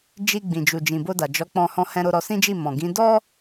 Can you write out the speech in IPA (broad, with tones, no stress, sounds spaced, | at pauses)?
d͡ʒ i˧ ɡ͡b ĩ˨ d͡ʒ u˨ d͡ʒ ĩ˨ b o˧ d a˨ d͡ʒ ɔ˨˦ k͡p ɔ̃˧ h ɔ̃˧ h ɛ̃˧ ɾ o˧ ɾ ɔ˧ s ĩ˦ d͡ʒ i˦˨ m ɔ̃˨ ɡ ĩ˨˦ d ɔ˦